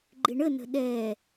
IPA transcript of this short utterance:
ɡ͡ǃ ɪ ɳ ə n ə̤ ɗ ɛ

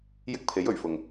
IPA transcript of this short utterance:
j ɪ˥ k̚ pʰ e˨˥ j ɵ˨˩ ɥ f ʊ˨˩ ŋ

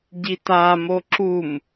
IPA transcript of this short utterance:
ɟ i t a m o ǁ u m

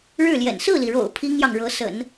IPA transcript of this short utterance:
ɻ ɻ̩˥˩ l j ɛ̰˨˩ n s ɹ̩˥˩ l i˩ ɻ o̰˨˩ ʊ̯ pʰ i˥ ŋ j ɑ˨ ŋ ɻ ɤ˧˥ s ə̰˨˩˦ n

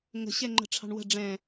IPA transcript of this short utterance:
ŋ ə̤ ɕ ɛ ŋ͡ǃ ə̤ ʈ͡ʂʰ ɑ̤ ɳ w ə̤ ɖ͡ʐ ɛ̃

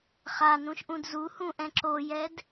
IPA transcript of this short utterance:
χ a n ũ ʃ ʔ ũ d z u h ũ ʔ ɛ̃ ǁ o j ɛ d

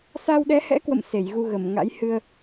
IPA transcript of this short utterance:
s a˧ w ɗ ɛ˨˦ h ɛ̰˧˥ k w ə̰˧˨ m s e˧˩ j ɣ u˧ ɣ ə˧˩ m ŋ a̰˧˥ j h ɨ˧ ə̯

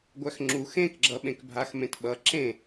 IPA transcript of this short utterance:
ɡʷ æ x ŋ͡ǁ u x ẽ k ɡ͡ǁ ʌ ɓ ẽ k bʱ a x m ẽ t ɓ ʌ ǁ ẽ

